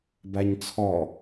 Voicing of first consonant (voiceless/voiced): voiced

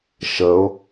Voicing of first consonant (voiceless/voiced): voiceless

